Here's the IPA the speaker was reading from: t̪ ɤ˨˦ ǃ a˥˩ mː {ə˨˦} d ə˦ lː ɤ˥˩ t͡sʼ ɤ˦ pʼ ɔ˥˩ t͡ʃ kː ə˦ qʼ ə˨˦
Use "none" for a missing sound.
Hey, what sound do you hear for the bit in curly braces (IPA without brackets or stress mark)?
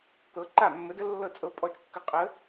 ə˨˦